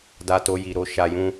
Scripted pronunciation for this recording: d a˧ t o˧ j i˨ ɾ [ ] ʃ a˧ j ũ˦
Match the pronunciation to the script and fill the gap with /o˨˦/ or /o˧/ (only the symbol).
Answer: o˨˦